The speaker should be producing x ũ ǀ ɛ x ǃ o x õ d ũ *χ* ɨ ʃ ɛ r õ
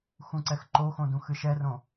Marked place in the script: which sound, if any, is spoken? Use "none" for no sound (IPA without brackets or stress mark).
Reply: x